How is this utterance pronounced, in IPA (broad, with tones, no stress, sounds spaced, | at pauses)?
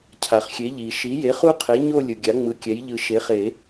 cʰ a˩ χ xʲ e˩˥ ʎ i˩ ʃ i˩˥ j e˩˥ χ u˦ qʰ e˩˥ ɲ o˦˨ lʲ ɯ˩ ɡʲ a˩˥ ŋ͡m ɯ˩˥ kʲ ɛ˩˥ j ʎ ɯ˨˩˦ ʃ e˩˥ χ e˨˩˦